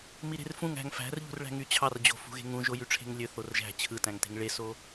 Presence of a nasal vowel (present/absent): present